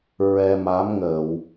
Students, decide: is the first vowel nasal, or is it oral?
oral